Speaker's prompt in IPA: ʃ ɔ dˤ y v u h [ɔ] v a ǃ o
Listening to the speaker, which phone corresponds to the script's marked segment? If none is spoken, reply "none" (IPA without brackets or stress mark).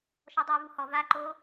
ɔ